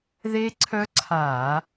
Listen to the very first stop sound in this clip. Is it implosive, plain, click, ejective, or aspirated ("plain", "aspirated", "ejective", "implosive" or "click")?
click